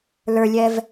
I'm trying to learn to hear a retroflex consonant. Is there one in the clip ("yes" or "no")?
no